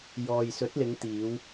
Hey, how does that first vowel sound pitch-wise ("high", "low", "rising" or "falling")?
low